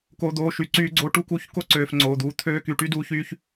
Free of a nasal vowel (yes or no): yes